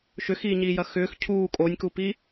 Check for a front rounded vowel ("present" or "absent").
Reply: present